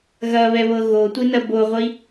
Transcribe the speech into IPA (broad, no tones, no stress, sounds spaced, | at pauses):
ɣ ɐ β ɛ β ɤ ɣ o tʷ i n ɐ b o ʁʷ i